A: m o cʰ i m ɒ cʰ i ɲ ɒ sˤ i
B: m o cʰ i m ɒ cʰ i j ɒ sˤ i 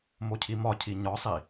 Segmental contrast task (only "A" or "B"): A